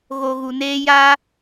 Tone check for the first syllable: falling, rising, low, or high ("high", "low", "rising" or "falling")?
low